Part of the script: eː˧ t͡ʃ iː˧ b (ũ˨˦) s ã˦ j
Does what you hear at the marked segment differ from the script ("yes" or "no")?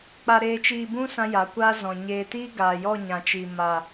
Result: yes